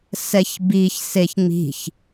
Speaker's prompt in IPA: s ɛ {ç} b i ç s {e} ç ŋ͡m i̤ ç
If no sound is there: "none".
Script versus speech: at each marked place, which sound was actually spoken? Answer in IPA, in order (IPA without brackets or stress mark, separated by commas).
ç, e